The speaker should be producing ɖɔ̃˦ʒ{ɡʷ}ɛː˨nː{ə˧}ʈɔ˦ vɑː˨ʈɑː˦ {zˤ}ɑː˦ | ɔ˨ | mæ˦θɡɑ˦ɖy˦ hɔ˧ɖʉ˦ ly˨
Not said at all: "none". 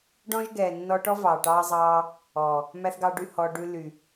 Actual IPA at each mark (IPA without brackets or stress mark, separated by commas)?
ɡ, ɔ˧, zˤ